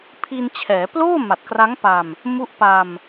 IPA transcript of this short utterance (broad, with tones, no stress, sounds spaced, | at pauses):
pʰ i˧ n t͡ɕʰ ɛː˩˦ p l oː˥˩ m a˨˩ t̚ k r a˦˥ ŋ p a˧ m | m u˦˥ ʔ p a˧ m